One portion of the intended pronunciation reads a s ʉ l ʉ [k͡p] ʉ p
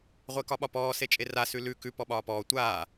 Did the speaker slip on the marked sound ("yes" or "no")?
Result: yes